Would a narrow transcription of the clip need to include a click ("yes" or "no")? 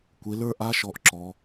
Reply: yes